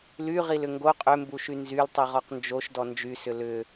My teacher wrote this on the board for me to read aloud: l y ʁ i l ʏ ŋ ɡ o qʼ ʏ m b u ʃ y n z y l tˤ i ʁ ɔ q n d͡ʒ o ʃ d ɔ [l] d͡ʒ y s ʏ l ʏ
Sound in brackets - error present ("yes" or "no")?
yes